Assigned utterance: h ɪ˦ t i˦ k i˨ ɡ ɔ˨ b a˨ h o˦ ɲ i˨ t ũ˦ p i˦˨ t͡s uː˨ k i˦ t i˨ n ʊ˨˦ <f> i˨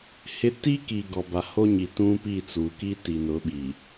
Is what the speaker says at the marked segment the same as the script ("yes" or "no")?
no